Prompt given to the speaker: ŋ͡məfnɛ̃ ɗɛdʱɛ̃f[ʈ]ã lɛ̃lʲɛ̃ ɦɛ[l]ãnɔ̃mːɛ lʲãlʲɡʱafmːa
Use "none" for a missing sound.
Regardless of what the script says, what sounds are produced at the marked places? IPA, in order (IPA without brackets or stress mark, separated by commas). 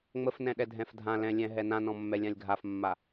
dʱ, n